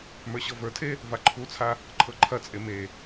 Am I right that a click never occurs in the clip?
no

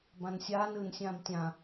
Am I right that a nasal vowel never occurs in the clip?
no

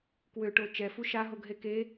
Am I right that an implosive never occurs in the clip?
yes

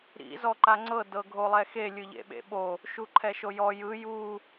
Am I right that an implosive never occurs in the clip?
no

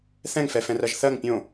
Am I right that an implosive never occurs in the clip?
yes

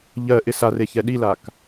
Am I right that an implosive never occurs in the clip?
no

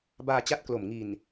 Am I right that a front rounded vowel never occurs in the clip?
yes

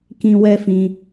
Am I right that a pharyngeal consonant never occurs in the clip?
yes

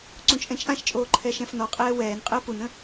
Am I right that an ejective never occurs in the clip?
no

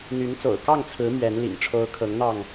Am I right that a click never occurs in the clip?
yes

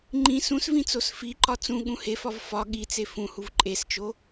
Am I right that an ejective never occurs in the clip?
no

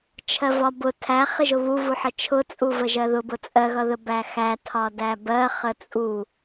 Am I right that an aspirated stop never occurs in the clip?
no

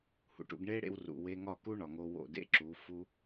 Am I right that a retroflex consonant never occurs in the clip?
no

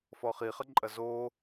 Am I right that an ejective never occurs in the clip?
no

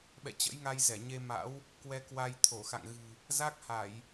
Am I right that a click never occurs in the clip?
yes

